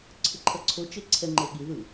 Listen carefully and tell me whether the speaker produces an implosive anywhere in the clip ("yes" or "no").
yes